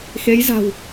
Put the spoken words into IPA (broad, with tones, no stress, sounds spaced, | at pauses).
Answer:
x e˨˦ j z a̤˨˩ w